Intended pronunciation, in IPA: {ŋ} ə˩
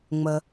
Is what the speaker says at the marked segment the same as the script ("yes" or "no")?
no